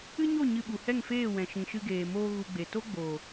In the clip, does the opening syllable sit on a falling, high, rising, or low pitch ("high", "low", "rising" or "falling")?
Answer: high